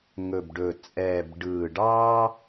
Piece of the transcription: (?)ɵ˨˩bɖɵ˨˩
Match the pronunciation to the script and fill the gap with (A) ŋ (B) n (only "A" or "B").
A